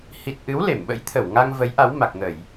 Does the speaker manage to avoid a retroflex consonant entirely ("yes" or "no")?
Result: yes